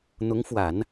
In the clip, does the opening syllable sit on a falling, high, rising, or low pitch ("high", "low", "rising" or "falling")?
rising